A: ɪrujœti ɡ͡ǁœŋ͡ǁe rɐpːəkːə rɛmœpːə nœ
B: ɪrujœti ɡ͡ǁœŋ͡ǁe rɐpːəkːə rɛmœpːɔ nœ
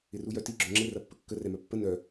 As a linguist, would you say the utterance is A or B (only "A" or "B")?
A